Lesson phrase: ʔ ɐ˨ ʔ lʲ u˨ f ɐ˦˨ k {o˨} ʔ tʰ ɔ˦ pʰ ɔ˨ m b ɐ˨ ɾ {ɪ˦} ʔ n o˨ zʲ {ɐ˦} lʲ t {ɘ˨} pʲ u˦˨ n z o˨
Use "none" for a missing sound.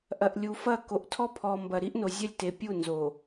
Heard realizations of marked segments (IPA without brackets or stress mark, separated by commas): o˨, i˦, ɐ˦, e˨